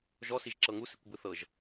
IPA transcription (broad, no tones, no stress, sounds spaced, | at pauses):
ʒ ɔ s i ʒ ǁ ɤ ŋ u s i kʷ b ɯ θ ɤ ʒ